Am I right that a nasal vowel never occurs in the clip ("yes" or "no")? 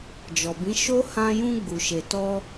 no